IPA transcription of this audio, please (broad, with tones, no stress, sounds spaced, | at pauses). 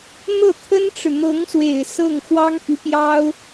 n̪ ɤ˥˩ t̪ʰ ə˥ n ʈ͡ʂ ɻ̩˨ n̪ ɤ˧˥ ŋ s w e˨˩ ɪ̯ s ɤ˥˩ ŋ x w ɑ˥ ŋ p y˧˥ p j ɑ˥ ʊ̯